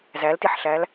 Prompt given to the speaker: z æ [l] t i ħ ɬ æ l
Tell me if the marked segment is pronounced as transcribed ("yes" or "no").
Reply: yes